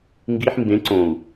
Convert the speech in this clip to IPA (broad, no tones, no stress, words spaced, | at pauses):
ŋɡiħ mbẽ ǀõu̯